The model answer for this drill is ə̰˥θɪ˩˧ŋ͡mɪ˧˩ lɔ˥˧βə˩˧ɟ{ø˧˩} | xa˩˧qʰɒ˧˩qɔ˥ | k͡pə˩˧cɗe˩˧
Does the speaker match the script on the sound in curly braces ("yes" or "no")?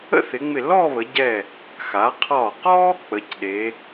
no